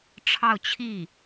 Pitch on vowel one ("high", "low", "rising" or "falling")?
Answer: falling